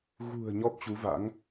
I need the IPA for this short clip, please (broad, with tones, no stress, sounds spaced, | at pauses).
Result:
ɣ ṳ˨˩ ə̯ ɲ ɔ˦˥ p̚ t͡ɕ u˨˦ v a̰˧˥ ŋ